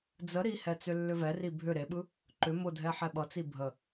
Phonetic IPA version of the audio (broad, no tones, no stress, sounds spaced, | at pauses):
d͡z ə ɾ i h ɛ t͡s ʏ lː ʏ v ɛ r i bʱ ʏ ɾ e ɓ ɯ | ǃ ʏ m ʊ dʱ ɛ ħ ɛ ɓ ʌ t͡s i bʱ ə